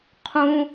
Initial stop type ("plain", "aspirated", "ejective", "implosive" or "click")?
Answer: aspirated